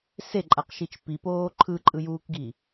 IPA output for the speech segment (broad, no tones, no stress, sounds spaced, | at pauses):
s e ǃʼ a q ʃ i t͡ʃ p i p oː ǃʰ ɯ ǃʼ ɯ j uː k ɡ i